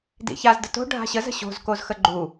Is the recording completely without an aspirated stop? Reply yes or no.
yes